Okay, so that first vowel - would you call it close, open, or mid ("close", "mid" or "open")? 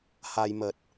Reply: open